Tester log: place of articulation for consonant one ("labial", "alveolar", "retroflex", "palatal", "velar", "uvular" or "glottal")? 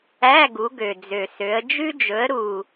velar